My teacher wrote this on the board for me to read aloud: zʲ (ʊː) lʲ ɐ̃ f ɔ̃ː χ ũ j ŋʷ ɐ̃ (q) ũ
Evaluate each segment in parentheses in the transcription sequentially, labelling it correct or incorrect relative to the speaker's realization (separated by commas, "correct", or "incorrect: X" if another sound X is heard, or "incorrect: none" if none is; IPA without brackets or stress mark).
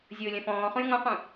correct, correct